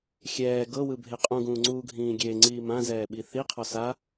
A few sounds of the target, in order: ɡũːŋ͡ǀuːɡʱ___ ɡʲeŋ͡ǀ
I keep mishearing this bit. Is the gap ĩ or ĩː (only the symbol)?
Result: ĩː